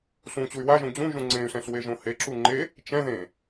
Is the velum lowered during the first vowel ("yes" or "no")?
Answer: yes